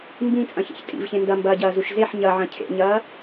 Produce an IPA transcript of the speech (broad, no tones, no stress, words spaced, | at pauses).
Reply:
mbĩt͡sʼɐ̃çḛç tʼḭvçẽ ndɐmbɐːɟɐːzuʃ zeħ ɲɐʕɐ̃ cʰḛɲɐː